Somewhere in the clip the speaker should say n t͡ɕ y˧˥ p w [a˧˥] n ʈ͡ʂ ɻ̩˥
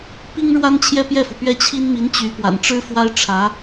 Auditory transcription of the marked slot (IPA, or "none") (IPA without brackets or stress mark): a̰˨˩